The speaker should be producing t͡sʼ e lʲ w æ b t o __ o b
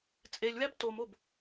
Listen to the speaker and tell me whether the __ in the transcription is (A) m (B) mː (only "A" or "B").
A